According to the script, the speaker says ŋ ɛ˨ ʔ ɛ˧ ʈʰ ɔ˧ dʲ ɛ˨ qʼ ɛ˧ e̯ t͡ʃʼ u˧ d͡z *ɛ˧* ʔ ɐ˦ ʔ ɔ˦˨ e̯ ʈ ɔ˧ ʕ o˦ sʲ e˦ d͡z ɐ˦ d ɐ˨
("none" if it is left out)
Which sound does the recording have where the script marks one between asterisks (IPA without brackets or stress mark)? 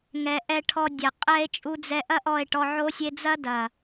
ɛ˧